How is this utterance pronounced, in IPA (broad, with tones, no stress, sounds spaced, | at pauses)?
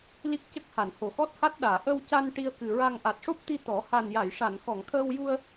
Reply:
l i˦˥ k̚ c ə˦˥ k̚ h a˨˩˨ n h o˨˩˨ x ɔ˦˥ t̚ h a˦˥ t̚ ɗ aː˨˩˨ ʔ ə˧ w c a˧ n ʈ i˧ ə̯ k ɨ˨˩ ɹ a˧ ŋ ʔ a˨˩ t̚ ʂ o˦˥ p̚ t̪ i˧ t̪ ɔ˨˩˦ h a˨˩ n j a˨˩˨ j ʂ a˨˩˨ n x ɔ˨˩˨ ŋ t̪ʰ əː˧ w j u˧ ə̯